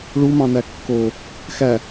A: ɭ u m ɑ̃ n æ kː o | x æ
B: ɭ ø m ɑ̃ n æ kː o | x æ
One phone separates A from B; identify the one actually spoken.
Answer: A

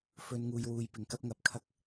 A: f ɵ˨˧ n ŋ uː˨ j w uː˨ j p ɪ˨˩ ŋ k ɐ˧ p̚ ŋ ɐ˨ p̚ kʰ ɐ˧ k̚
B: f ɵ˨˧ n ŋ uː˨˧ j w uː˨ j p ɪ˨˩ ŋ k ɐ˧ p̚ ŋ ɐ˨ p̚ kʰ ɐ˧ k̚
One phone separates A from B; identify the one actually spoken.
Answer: A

